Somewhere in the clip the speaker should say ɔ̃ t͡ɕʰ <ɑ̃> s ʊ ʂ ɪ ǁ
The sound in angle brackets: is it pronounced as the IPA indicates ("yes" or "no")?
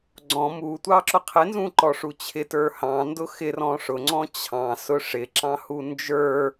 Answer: yes